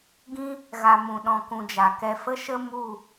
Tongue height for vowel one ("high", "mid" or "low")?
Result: high